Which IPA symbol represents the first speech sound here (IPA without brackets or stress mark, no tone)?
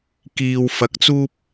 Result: k